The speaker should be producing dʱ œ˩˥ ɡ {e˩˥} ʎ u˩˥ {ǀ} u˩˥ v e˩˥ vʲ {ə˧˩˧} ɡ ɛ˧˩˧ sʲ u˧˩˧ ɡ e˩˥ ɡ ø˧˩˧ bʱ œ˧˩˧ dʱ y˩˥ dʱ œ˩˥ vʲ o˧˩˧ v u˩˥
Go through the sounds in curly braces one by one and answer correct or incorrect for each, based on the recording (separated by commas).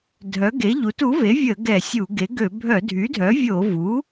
correct, incorrect, correct